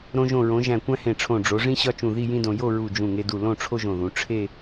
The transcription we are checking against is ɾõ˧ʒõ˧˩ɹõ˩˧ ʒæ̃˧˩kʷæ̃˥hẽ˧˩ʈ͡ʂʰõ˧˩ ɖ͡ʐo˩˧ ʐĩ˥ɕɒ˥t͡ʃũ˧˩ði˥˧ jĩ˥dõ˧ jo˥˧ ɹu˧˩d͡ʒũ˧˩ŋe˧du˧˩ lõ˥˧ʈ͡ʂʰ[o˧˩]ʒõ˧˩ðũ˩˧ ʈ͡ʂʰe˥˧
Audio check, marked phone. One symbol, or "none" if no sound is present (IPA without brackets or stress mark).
o˥